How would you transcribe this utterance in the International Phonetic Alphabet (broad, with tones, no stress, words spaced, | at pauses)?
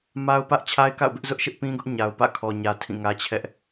ma˦ʊ̯pä˦ʔ t͡ɕʰa˦ɪ̯ka̰˦˨ʊ̯bɪ˦ʔ zʊ˦ʔʃɪ˦ʔpĩ˦ɡʊ˦ʔ ɲa˨ʊ̯pä̰˦˨kʰɔ˨ɲä˨ tʰĩ˦˨ŋä˦t͡ɕʰɛ˦ʔ